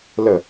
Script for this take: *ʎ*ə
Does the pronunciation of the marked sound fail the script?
yes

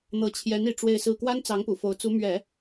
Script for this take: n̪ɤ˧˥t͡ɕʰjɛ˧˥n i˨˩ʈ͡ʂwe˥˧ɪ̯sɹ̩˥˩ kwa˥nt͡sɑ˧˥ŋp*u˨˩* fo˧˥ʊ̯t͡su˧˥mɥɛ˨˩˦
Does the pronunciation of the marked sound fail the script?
no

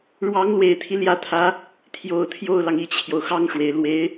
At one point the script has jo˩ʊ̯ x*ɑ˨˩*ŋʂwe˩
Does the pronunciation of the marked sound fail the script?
yes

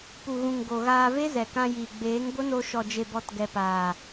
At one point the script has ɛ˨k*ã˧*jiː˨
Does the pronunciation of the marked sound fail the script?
no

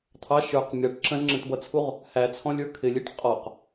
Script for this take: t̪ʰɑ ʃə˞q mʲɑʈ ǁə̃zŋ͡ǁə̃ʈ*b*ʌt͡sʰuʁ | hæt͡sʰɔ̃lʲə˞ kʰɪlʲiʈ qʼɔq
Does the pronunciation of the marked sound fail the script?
no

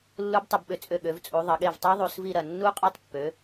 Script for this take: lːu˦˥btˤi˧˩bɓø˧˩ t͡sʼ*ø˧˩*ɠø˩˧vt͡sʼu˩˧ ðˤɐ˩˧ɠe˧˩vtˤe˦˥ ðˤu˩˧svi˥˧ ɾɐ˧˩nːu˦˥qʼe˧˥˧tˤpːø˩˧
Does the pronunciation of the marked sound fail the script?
no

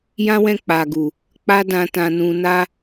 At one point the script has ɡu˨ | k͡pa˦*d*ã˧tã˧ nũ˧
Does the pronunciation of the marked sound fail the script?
no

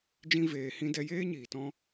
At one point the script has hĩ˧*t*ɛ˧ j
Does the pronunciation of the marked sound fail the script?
yes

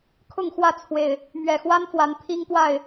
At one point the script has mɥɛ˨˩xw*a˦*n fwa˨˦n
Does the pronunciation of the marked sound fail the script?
no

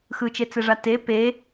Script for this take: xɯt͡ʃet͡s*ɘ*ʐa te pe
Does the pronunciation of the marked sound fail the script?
yes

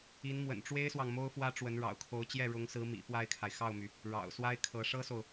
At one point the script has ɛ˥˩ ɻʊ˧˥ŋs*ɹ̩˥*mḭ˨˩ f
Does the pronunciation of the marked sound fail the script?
yes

